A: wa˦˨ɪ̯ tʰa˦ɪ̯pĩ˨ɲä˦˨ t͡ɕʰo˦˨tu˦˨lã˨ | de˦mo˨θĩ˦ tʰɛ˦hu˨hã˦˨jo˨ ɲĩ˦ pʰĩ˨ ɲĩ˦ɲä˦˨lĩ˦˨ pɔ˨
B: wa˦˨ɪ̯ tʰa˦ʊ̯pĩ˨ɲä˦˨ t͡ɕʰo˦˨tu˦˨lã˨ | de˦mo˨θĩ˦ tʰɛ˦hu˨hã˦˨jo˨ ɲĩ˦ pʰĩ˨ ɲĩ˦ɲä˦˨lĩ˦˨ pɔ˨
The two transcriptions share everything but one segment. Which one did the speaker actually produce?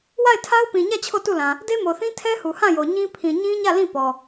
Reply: B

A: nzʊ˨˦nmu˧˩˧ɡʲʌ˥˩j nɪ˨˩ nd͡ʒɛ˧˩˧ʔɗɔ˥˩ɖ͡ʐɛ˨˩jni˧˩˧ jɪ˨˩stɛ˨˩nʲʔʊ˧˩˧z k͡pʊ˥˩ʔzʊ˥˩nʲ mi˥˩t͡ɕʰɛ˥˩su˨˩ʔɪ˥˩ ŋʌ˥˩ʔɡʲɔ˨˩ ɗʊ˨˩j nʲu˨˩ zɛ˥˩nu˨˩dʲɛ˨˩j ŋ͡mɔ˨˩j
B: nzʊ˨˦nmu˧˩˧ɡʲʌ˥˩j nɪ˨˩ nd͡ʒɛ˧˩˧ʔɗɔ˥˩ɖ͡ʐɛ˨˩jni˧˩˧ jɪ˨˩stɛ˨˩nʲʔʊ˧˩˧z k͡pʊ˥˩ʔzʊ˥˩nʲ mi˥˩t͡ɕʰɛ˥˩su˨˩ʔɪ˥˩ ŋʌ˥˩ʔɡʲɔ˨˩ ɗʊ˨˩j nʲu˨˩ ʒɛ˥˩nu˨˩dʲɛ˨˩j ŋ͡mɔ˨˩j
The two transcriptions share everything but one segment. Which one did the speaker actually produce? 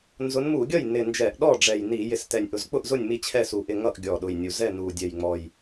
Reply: A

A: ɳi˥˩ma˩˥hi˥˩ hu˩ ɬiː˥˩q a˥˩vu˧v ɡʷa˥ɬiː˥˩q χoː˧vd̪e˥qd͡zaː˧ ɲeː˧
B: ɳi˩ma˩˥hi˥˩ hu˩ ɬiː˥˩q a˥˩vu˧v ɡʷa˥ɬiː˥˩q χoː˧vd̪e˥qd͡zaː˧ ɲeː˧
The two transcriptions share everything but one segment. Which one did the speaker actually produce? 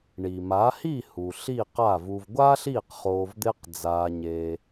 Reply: B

